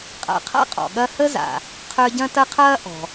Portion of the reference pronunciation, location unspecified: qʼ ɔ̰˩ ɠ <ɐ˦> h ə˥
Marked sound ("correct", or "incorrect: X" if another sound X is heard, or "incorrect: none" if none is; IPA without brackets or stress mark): correct